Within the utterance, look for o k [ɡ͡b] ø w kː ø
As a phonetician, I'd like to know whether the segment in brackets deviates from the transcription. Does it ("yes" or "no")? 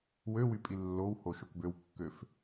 yes